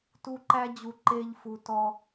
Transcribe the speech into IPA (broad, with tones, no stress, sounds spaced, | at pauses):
t u˦ ǃ æ˦ d͡ʑ u˧ ǃ e˦ ʎ f u˧ t ɔ˦